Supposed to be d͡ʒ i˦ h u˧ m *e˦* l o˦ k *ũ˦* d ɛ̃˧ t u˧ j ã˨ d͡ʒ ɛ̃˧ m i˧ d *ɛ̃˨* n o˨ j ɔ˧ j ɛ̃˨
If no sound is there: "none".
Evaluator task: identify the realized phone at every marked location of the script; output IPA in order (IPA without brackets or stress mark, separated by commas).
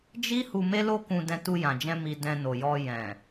e˦, ũ˧, ɛ̃˧